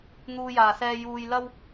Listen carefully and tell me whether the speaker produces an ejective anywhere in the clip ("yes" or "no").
no